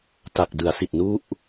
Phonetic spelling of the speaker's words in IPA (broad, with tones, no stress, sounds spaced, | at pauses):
t a˨˩ k̚ d ɯ˩˦ a̯ s i˨˩ t̚ n u˥˩ ʔ